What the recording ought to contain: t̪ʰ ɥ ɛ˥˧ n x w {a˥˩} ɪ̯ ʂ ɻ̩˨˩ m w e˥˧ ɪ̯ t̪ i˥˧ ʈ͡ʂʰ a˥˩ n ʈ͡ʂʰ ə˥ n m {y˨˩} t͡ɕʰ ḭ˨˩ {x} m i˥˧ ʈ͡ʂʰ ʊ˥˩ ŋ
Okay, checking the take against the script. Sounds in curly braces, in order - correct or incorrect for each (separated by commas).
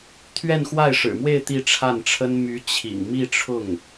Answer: correct, incorrect, incorrect